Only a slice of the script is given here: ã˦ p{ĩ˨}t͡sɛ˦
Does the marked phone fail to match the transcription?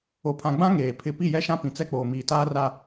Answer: no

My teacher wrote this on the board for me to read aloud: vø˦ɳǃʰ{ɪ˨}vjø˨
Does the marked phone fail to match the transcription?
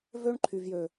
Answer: yes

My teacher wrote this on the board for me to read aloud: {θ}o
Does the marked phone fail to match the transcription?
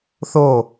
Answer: no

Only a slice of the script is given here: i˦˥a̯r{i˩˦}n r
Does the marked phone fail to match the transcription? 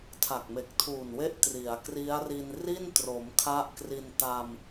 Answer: yes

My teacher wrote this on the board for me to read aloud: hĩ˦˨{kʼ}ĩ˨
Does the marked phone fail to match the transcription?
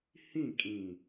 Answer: no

